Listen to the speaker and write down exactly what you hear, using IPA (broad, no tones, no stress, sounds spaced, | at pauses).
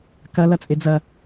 k ɐ l ɐ t͡sʼ e d͡z ɐ